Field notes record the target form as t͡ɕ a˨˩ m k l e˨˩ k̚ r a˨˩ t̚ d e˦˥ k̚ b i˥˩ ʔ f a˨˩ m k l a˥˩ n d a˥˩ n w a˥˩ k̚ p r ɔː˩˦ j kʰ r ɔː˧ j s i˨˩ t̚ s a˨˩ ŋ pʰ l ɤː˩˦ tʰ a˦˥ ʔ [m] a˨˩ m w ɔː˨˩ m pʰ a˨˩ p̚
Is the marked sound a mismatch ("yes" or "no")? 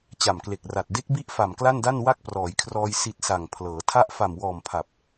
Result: yes